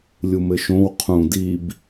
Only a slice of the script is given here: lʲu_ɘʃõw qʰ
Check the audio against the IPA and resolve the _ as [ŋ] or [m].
m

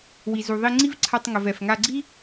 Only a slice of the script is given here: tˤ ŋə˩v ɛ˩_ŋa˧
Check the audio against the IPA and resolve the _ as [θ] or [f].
f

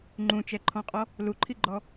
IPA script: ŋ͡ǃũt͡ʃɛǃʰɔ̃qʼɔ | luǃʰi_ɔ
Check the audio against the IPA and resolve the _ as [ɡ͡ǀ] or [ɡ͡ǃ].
ɡ͡ǃ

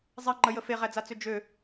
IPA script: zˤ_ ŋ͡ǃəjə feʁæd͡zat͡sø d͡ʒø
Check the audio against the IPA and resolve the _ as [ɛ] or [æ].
ɛ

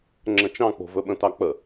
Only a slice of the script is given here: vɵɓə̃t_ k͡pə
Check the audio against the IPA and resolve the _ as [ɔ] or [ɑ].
ɑ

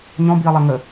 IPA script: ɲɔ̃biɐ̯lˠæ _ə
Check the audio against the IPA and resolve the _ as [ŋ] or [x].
ŋ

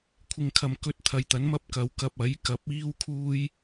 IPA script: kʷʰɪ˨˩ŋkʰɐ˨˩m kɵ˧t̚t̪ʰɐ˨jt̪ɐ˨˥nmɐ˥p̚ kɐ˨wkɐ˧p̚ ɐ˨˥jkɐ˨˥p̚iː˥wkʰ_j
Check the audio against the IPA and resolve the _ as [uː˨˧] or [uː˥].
uː˥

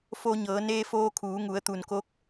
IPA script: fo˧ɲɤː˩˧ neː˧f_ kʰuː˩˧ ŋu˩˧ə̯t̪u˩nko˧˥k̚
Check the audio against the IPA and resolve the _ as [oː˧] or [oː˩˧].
oː˧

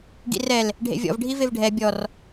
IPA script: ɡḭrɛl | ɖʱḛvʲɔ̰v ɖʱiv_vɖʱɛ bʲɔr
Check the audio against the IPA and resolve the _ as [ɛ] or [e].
e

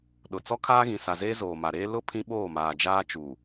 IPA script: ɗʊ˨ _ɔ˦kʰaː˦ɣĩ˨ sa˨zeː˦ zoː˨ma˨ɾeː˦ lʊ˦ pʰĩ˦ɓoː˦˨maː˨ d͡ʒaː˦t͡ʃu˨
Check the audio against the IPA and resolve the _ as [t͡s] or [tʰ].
t͡s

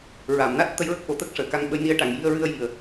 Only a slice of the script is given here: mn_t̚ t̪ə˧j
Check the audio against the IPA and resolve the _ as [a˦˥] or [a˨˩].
a˦˥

